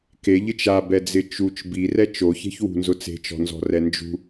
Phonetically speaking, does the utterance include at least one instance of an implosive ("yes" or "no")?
no